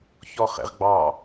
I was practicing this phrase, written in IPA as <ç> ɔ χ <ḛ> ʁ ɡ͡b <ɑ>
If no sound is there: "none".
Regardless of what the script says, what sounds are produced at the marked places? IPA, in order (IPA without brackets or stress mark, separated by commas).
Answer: ç, ḛ, ɑ